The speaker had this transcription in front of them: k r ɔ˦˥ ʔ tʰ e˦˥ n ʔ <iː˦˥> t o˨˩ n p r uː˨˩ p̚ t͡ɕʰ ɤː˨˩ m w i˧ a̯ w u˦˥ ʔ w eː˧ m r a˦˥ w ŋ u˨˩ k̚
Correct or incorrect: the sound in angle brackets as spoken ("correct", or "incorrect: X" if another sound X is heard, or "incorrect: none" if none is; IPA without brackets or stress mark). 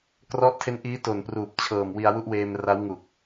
correct